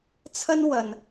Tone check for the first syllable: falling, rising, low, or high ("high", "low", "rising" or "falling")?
high